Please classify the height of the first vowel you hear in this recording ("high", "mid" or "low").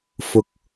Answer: high